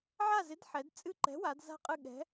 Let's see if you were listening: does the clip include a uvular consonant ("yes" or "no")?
yes